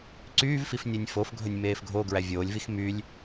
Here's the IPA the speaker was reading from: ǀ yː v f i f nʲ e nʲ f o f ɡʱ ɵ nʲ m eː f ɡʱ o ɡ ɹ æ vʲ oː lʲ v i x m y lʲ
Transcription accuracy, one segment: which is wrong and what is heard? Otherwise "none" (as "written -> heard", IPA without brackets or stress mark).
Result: none